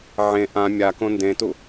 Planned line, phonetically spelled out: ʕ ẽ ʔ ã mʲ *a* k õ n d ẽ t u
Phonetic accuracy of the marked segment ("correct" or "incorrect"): correct